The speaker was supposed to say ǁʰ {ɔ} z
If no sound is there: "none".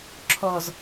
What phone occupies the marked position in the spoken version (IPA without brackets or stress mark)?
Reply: ɔ